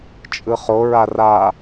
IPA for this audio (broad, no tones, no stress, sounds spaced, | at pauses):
t͡ʃʼ ɯ χ o ɹ a r a